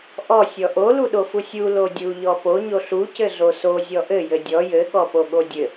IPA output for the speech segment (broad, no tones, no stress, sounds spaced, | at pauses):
ʔ ɔ sʲ ɔ ʔ o l u ɗ o f u sʲ u l o dʲ u ʎ ɔ p o ɲ o ɬ u c ɘ ɮ o s o zʲ ɔ ʔ ɘ j ɘ dʲ ɔ j ɘ ɠ ɔ p o ɠ o dʲ ɘ